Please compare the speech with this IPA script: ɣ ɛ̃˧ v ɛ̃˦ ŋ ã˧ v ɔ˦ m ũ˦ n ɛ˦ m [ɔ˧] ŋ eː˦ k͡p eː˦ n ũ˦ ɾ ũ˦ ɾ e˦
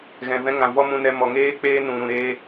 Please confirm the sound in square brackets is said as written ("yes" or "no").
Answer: yes